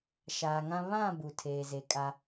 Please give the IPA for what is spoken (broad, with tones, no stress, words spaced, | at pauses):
ʃaː˨ŋã˦ βã˦˨ bu˨tʰeː˨ze˨ kʼa˦